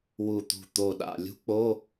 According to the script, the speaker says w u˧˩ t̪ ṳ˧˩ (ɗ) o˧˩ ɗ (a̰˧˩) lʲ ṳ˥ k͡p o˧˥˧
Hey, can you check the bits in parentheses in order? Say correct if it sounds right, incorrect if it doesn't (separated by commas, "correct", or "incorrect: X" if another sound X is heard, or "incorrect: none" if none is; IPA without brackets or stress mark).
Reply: incorrect: t̪, correct